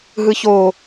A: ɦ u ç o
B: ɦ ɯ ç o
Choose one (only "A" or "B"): B